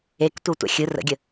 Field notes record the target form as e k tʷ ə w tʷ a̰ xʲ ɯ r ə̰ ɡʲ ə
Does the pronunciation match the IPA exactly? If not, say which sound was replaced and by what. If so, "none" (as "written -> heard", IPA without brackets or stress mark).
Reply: none